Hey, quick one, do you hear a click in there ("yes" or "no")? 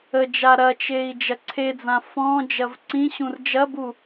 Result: yes